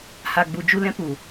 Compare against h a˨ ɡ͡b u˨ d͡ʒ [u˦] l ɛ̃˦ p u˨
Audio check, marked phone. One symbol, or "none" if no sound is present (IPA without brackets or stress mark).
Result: u˧